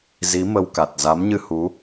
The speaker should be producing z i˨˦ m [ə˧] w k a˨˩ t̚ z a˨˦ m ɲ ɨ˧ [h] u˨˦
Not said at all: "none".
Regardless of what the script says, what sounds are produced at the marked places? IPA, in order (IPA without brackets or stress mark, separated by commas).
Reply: ə˧, h